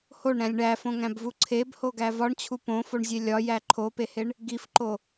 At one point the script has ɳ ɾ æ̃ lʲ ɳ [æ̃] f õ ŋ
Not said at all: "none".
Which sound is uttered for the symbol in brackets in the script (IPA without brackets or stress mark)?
æ